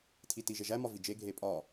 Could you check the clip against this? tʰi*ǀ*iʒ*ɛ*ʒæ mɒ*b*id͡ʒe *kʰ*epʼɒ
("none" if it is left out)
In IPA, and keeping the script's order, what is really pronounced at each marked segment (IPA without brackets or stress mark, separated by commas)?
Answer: t, e, v, ɡʱ